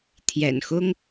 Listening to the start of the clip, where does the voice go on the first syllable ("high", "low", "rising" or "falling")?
low